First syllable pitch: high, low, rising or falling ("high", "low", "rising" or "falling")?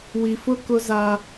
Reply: low